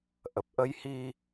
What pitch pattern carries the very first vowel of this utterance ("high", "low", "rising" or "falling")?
low